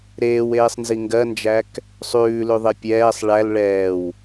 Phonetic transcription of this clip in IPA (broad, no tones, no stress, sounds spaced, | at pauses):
ɾ eː w eː sˤ n z i ŋ ɡ ɜ n d͡ʒ æ k | sˤ ʉː l ʉ ðˤ e pʲ ɛː sˤ ɭ æ l ɭ ɛː w